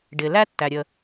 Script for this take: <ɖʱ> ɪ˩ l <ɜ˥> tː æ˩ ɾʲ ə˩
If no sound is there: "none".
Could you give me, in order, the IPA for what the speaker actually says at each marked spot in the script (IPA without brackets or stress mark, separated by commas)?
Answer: ɖ, æ˥